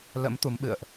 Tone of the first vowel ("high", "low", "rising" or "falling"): rising